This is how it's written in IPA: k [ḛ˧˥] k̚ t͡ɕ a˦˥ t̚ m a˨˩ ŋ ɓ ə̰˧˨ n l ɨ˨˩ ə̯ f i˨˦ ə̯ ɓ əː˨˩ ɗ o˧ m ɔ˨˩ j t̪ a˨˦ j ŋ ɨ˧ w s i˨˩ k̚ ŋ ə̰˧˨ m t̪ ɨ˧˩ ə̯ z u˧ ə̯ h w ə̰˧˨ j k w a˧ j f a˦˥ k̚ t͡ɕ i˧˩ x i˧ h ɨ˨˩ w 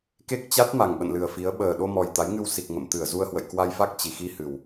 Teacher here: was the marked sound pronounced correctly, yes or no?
no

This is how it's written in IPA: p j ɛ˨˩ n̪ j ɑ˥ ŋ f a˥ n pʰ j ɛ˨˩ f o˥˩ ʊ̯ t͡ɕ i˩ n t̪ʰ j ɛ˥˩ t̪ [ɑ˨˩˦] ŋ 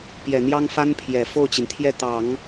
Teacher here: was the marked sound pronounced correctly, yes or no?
yes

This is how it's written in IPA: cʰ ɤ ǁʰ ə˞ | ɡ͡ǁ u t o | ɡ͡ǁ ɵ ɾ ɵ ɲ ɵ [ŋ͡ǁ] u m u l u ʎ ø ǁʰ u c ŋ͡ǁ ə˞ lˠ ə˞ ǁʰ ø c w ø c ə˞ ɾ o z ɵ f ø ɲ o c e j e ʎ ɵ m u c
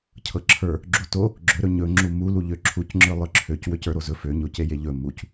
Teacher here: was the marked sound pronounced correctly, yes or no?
yes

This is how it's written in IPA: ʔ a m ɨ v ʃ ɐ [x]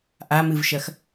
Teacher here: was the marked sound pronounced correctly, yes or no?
yes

